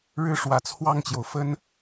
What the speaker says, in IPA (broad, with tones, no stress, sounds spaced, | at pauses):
ɻ ɻ̩˥˩ ʂ w ä˨˩ t͡sʰ w ɑ˥˩ ŋ t͡ɕ j o˩ ʊ̯ f ə˥ n